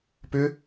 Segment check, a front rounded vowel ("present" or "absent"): present